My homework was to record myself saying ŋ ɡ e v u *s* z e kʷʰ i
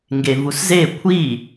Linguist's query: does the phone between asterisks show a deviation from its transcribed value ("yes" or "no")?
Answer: no